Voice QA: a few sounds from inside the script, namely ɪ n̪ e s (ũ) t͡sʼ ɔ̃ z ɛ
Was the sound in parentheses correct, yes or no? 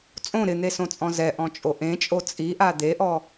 no